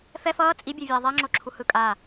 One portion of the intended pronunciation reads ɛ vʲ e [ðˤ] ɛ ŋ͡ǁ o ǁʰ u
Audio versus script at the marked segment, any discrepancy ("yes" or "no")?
no